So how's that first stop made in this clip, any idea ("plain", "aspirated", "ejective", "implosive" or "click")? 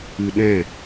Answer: implosive